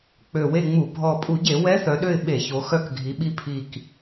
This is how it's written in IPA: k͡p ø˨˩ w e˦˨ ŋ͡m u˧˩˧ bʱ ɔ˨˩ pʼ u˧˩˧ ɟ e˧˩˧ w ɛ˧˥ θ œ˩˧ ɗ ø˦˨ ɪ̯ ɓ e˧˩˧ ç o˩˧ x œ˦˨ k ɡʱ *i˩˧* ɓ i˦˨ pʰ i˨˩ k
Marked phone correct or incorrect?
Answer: correct